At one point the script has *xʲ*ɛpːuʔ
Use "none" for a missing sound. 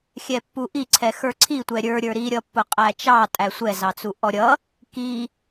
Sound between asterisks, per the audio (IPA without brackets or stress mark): xʲ